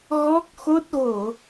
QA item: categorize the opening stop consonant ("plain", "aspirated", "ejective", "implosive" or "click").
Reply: plain